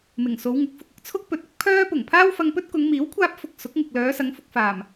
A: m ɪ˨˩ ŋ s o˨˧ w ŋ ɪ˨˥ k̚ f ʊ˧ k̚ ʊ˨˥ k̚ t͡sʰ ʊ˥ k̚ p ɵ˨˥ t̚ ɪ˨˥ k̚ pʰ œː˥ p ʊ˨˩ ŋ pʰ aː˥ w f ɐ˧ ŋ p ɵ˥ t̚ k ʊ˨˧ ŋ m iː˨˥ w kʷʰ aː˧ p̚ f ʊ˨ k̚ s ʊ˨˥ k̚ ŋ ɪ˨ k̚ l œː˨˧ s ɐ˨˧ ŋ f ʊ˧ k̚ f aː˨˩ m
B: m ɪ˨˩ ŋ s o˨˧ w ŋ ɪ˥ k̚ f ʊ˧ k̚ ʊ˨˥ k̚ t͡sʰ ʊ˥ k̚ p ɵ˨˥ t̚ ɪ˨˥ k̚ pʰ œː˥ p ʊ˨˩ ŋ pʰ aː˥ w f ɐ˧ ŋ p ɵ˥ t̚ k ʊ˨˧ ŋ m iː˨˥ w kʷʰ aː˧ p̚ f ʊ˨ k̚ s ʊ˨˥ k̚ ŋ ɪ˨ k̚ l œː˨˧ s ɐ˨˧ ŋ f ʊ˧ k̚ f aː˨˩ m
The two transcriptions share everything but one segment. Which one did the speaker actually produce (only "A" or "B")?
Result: A